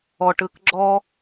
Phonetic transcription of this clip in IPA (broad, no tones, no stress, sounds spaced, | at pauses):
ɔ ʈ ɯ k ɡ͡ǁ ɔ